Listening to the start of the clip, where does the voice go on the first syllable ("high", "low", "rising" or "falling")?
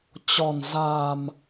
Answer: low